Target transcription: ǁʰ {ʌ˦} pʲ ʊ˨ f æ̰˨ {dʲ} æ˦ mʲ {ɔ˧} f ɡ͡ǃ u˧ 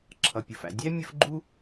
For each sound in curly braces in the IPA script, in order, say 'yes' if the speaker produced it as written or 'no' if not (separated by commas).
no, yes, no